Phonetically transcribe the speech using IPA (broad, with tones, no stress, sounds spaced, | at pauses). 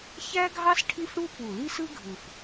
ç æ˥ ɡʱ ɑ˥ s ʈʰ i˥ f ɽ u˥ p u˨˩ l i˥ s ɯ˥ ɡʱ ɯ˨˩ f